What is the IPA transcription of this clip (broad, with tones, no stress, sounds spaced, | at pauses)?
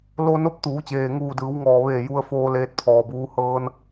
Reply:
l o˧ n o˧˥ p̚ t̪ uː˩˧ t͡ɕ eː˩ ŋ uː˧˩ d ɯː˩˧ w ŋ ɔː˩ ʋ eː˧˩ j u˧ ə̯ f oː˧ l eː˧ t̚ pʰ ɔː˩ b uː˧˥ h ɤː˧ n